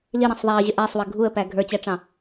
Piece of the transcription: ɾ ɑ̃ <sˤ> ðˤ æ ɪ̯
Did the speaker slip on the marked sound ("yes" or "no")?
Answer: no